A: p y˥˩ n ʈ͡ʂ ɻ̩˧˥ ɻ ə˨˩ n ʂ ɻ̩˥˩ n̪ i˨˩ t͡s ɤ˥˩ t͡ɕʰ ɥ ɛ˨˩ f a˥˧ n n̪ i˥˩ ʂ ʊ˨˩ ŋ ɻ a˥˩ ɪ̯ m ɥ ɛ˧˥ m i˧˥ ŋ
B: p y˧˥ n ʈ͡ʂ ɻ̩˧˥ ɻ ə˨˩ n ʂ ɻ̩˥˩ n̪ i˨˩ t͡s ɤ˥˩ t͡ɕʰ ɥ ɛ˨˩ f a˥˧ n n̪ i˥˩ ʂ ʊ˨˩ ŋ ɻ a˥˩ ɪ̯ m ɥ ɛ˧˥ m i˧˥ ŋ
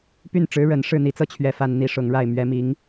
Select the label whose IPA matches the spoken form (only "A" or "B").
A